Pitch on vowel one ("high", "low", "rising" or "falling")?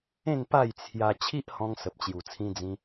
falling